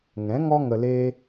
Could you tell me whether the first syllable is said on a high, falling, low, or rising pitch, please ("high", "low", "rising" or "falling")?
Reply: rising